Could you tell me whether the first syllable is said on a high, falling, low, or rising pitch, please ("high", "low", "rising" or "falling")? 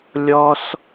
high